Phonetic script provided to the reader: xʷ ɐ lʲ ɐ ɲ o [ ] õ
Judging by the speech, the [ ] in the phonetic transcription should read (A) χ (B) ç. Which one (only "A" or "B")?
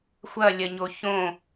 B